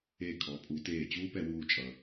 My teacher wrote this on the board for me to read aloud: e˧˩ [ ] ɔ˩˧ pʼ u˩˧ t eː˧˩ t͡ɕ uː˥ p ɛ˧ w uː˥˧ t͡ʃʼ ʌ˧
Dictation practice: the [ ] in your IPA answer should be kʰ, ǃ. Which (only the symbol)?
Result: kʰ